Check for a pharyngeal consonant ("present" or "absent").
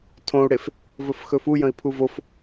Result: absent